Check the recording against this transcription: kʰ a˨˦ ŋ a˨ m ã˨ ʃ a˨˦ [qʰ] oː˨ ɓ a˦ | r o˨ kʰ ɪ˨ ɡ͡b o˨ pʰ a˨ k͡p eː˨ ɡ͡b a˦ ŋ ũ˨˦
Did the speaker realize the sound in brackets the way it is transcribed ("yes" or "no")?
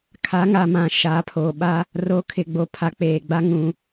no